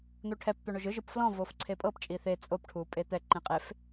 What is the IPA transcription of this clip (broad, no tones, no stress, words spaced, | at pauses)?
n̪oʈʰɛp t̪oɳoʒɯ ʒɯpflɔ̃ vofǀʰepʼɤp t͡ʃʼiθe t͡sʼop ʈʰupʼet̪ɛ ǃẽqʼef